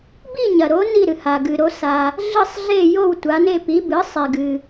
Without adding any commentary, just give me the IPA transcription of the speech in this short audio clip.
bi˦˨ɲɐ˩ɾo˩˧ ni˦˨ɾɨ˩ha˩ ɡɨ˩ɾo˩˧ sa˩ | ɮɨ˦˨sˤɮe˦˨ jo˦˨wtʷa˩˧ne˦˨ pi˩˧bɨ˩˧sˤe˩ɡɨ˩

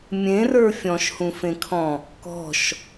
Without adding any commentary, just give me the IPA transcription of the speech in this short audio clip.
mʲẽrə˞ fʲɔ̃ʃhũfẽkʰɔ̃ | kɔ̤ʃ

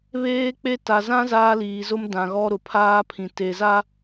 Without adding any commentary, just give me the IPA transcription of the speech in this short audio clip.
βeː˦k͡pe˦ ta˨zã˦ zaː˦liː˨zʊ˦m dã˨ɣɔ˦ ɾʊ˨pʰaː˦pʰĩ˨ te˨za˦

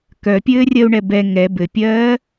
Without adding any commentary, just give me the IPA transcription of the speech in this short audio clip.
kœpʲɘːrʲɜu̯ɳɛ bɛ ŋɛ bɘpʲɜː

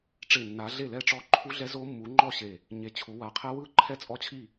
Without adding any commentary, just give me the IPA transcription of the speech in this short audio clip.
ʈ͡ʂe˧˩nːa˨˦ ɮe˥˨lɛ˥˨ʈ͡ʂɔ˦˥ ǃʰu˦˥ɮɛ˦˥zo˦˥ mːu˨˦ŋ͡ǃɔ˥˨ɕe˧˩ | ɲe˨˦t͡ɕʰu˨˦wa˧˩ qʰɛ˦˥wɯ˥˨ ǃʰɛ˥˨t͡sʼɔ˦˥t͡ɕʰi˥˨

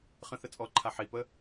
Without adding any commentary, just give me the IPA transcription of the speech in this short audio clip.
χə̃θə t͡sʼɔǃʰa ħipə

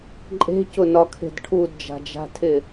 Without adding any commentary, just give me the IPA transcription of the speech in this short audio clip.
ǃʼe̤cʊnɒkʰe̤d ʈʰudd͡ʒa̤d͡ʒa̤tʰɪ

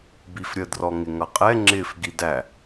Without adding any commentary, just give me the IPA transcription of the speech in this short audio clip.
bifɾʲə drɔŋɪŋʌqʼɛ ŋ͡ǁɪf ɡidæ

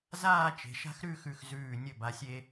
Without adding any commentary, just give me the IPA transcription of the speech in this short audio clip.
zaː˥˧ t͡ʃe̤˩˧ʃa̤˥˧xɾʉ˥˧xʉ˧˩x zʉː˧˩nʲɵ˧˩ba˩˧sʲe˧

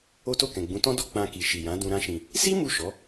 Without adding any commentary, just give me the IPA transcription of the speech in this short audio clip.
o˦to˦˨kɛ̃˨ ɡ͡bũ˨˦tɔ̃˦dɔ˦˨ k͡pã˧ ki˨ʃi˨jã˨˦ dũ˧ɾã˦ʃĩ˧ | si˦ mu˦˨ʃɔ˨˦

